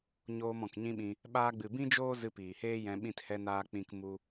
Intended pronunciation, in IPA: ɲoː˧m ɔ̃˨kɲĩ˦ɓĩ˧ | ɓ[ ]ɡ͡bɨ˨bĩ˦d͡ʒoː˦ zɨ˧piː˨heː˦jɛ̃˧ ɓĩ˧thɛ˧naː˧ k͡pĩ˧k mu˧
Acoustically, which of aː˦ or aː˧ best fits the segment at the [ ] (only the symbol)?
aː˧